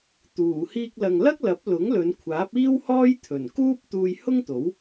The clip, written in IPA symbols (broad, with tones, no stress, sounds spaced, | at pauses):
t̪ uː˨˩ h iː˧ k̚ l ɐ˨ ŋ l ɐ˥ k̚ l ɐ˨˥ p̚ l ʊ˨˥ ŋ l ɵ˨˧ n kʷʰ aː˨˥ p̚ iː˥ w h ɔː˥ j t̪ʰ ɵ˨˩ n k uː˥ p̚ t̪ uː˧ j h ʊ˥ ŋ t̪ o˨˥ w